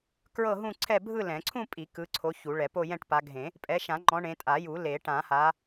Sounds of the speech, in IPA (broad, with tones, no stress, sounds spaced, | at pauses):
k ɹ ɤ˥˧ ɦ ũ˥˧ ǀʰ ɛ˥˧ bʱ ɯ˥˧ l ɛ̃˨˩˦ ǀʰ ũ˥˧ pʼ i˨˩˦ k ɯ˨˦ ǀʰ o˨˦ ç u˨˩˦ ɭ ɛ˨˩˦ p o˥˧ j ɛ̃˥˧ ʈ p a˨˦ ɡʱ ẽ˨˩˦ | pʼ ɛ˨˦ ʃ ã˨˩˦ ŋ͡ǃ ɔ̃˨˦ ɳ ẽ˨˦ tʼ a˨˩˦ j u˨˩˦ l e˨˩˦ ʈ ã˨˩˦ h a˨˦